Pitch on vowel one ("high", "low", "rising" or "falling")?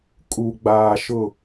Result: low